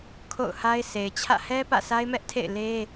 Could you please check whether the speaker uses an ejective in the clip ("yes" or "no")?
no